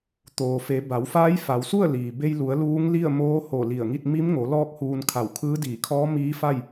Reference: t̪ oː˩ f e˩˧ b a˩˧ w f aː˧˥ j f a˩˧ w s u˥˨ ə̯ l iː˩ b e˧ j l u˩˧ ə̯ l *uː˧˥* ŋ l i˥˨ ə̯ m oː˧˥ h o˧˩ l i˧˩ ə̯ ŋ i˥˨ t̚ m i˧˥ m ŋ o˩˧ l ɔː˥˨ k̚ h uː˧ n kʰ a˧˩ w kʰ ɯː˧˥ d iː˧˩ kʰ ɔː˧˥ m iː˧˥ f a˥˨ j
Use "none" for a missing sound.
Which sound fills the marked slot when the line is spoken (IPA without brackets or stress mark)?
uː˧˥